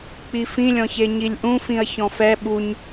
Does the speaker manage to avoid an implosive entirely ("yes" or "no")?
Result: no